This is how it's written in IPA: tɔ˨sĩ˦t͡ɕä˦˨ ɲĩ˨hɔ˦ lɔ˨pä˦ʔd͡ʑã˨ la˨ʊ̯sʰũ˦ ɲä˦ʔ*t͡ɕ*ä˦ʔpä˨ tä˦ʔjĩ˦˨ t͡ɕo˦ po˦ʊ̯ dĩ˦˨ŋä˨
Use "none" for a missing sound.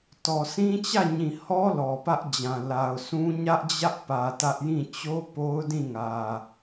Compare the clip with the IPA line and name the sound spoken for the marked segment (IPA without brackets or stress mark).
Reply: d͡ʑ